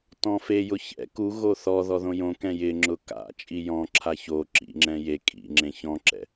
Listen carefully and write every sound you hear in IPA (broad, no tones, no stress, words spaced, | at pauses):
tɔ̃fejʊ çɛ̰ kuɣo θɔðɔ ðõjõkɛ̃ jɪŋ͡ǁʊ ka̰t͡ʃʼi jɔ̃ǁʰa ço ǁḭŋ͡ǁɛ̃ je kʼḭ ŋ͡ǁẽçɔ̃ǁɛ̰